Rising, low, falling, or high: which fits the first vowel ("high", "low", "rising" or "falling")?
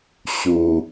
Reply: low